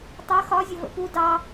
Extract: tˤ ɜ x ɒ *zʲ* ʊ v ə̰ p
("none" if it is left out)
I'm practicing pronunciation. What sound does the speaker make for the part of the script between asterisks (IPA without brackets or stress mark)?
zʲ